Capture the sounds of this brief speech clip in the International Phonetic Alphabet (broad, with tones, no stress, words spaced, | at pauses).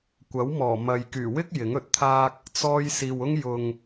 kʷɐ˨˥wmɔː˨˩ mɐ˨jkyː˨˩ wɪ˥k̚ jɪ˨˥ŋɵ˨t̚t̪ʰaː˥k̚ | t͡sɔː˧jsiː˨wʊ˥ŋ jʊ˨ŋ